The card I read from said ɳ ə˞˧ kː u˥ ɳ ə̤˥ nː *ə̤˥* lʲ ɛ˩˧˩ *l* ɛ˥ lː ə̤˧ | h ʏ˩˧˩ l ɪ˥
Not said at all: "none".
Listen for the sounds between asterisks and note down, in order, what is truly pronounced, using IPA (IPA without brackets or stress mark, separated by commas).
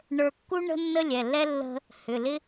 ə˥, lː